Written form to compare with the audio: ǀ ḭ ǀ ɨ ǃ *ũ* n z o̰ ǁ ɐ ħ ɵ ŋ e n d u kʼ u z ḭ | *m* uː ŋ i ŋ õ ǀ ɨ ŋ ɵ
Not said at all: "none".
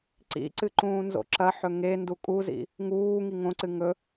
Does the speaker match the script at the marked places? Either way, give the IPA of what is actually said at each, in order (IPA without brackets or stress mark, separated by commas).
ũː, ŋ